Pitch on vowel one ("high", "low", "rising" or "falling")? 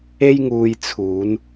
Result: high